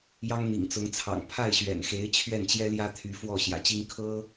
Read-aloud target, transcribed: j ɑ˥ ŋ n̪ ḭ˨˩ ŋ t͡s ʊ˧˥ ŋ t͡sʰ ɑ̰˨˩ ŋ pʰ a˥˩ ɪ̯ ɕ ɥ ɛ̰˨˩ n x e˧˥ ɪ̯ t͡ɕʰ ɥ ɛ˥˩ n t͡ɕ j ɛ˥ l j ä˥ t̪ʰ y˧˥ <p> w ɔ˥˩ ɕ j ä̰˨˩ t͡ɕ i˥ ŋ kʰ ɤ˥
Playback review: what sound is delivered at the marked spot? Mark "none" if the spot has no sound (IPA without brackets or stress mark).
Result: f